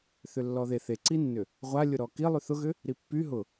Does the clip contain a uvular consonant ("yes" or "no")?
yes